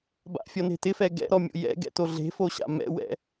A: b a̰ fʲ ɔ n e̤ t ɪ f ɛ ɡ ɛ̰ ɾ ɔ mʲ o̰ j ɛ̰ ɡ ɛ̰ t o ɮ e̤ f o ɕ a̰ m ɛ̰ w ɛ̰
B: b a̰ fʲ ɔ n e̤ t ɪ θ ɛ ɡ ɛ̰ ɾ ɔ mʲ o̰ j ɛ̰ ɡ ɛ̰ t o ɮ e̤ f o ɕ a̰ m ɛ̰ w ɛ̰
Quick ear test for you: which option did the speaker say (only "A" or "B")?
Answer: A